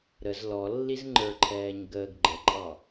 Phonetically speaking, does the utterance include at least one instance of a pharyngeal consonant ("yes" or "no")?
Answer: no